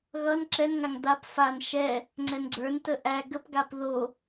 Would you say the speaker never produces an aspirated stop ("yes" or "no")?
yes